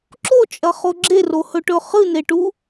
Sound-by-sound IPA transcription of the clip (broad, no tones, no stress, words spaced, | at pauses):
ǁot͡ʃʼɐχo ɡ͡ǁerohɵʈɵ χɨneʈu